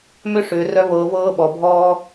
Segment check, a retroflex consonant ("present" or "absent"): present